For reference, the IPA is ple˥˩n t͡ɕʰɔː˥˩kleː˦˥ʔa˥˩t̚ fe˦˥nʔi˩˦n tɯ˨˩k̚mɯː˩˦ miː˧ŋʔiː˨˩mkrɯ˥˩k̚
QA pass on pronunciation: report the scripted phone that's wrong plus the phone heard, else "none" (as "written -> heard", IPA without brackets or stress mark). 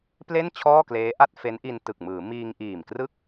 i˩˦ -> i˧